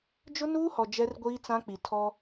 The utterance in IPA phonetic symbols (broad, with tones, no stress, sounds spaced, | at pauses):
d͡ʒ ʊ˦ n uː˦ h ɔ˨ d͡ʒ ɛ˦ r ɡʷ iː˦ t͡s ã˦ k͡p i˨ tʰ ɔ˦